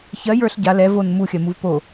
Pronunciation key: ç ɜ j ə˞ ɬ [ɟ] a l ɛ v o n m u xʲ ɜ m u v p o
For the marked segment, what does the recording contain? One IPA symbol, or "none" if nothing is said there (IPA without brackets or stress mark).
ɟ